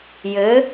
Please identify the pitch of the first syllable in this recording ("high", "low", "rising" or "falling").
rising